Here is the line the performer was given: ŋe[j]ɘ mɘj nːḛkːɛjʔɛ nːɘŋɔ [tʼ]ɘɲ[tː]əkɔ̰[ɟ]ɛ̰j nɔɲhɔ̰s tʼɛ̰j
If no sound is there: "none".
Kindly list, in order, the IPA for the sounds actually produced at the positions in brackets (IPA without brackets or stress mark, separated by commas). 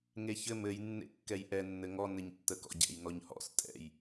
ç, n, tː, ɟ